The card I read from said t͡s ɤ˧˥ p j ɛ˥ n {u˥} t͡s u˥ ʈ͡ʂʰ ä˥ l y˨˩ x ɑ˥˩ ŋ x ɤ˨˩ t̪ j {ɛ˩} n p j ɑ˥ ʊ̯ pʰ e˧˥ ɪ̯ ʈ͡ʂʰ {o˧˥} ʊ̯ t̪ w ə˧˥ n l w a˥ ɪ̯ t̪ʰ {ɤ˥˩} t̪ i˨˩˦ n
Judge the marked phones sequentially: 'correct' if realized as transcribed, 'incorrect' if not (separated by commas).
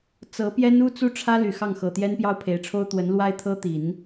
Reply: correct, incorrect, incorrect, incorrect